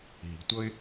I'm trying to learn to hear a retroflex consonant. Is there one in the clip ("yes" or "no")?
no